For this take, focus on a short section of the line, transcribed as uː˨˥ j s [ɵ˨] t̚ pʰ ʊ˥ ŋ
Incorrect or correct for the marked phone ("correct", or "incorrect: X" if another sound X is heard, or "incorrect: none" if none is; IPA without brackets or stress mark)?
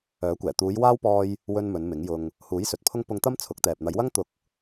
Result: correct